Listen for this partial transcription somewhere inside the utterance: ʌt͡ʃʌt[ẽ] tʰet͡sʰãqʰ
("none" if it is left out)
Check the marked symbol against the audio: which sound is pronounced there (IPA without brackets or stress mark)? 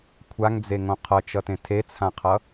ẽ